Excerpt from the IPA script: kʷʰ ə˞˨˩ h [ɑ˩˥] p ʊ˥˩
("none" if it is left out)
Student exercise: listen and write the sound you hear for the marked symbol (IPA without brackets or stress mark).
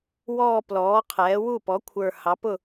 ɑ˩˥